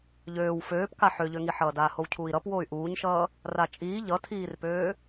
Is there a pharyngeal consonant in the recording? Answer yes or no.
yes